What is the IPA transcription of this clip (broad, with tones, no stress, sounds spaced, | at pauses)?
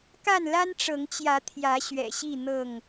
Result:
k a˥˨ n l a˦ n ʈ͡ʂ ɤ˨˦ ŋ t͡ɕ j ä˨˦ t̪ʰ j ä˨˦ ɕ ɥ ɛ̰˨˩ ɕ i˥˨ n̪ ɤ˥˨ ŋ